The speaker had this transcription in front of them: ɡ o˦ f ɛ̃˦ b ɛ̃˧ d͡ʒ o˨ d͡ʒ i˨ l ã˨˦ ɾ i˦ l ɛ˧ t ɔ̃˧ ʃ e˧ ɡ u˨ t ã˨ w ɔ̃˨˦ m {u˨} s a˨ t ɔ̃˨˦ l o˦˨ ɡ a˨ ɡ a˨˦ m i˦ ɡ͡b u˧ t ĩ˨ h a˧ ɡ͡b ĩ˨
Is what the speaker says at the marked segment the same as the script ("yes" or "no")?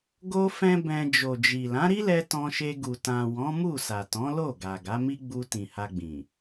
no